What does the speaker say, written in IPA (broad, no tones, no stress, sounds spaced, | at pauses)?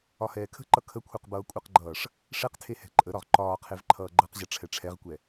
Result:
ɒ h ɛː kʰ ə̤ ǃ ʌ kʰ ə kʷʰ ɛ q b ʌː kʷʼ ʌ q ɡ͡ǃ ʌː ʂ | ʂ ɛ q tʰ e h ɛ̤ ǃʼ ə ɾ ɒ ʁ ǃ ɒː qʰ e v ǃʰ ʌː ɡ͡ǃ ʌ q ʑ ʌ ʈ͡ʂʰ ɛ ʈ͡ʂʰ ɛ ʁ kʷ ɛ